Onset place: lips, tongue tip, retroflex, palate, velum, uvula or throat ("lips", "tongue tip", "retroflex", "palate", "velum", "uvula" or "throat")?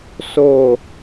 tongue tip